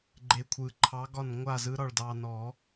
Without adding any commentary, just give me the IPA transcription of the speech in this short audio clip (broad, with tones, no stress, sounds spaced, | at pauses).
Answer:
ɡ͡ǃ e˧ kʷʰ ɯ˧˩ ǃʰ ɑ˧˥ ɡ ɒ˥˨ n ŋʷ a˥˨ z ɯ˧˥ ɾ ɒ˥˨ ɭ d ɑ˧ n ɔ˨˩˦